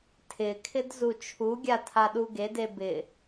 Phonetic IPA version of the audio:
tʰ ɪ kʰ ɪ d z u t͡ʃʰ u ɡʲ a tʰ a ɗ u ɡ e d e b ɪ

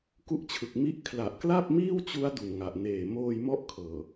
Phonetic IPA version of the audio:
k u˦˥ ʔ t͡ɕʰ ɯ˨˩ k̚ m i˥˩ ʔ kʰ l a˨˩ ʔ k l a˥˩ p̚ m iː˥˩ w t͡ɕ u˦˥ a̯ d u˨˩ n ŋ a˨˩ ʔ n eː˨˩ m oː˧ j m ɔ˦˥ ʔ kʰ ɤː˨˩

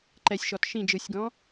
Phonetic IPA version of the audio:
ǃ ɛ sʲ ʃ ɔ t ʃ ĩ d͡ʒ ɯ sʲ ɡ ɔ̃

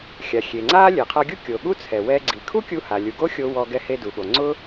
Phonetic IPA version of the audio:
xʲ a˩ xʲ e˩ ŋ͡ǀ aː˥ lʲ e˩ qʰ a˧ ɡʲ u˥ kʲ o˩ ɠ u˥ t͡sʰ ɛ˩ w ɛ˧ ɡ͡ǀ i˩ kʰ u˥ kʲ u˧ h a˩ lʲ u˩ ɡ o˥ xʲ o˧ w ɔ˧ ɡ ɛ˧ h e˧ d u˩ ɠ o˩ ŋ͡ǀ ʊ˥

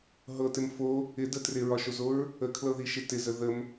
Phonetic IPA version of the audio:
ɦ ɤ t ɪ m f o | ɪ d ə t r ɪ ɹ ɒ ʃ o z o ɹ | ə kʰ l ɤ ð i ʃ ɪ t ɪ z ə ð ə m

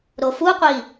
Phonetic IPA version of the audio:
ɾ o f u qʷ i

